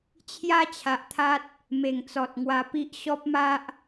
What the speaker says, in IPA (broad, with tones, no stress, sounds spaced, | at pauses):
t͡ɕʰ j a˦ t͡ɕʰ a˨ ʔ t̪ʰ a˦ t̚ | m e˨˩ ŋ t͡s ɔ˨ t̚ ŋ w a˧ p i˦ ʔ ɕ ɔ˦ p̚ m a˦ ʔ